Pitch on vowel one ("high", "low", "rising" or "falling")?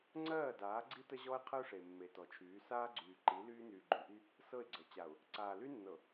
falling